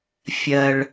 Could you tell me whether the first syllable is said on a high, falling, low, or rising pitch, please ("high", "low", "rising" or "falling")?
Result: low